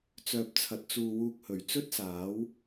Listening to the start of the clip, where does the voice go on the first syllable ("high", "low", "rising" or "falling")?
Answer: low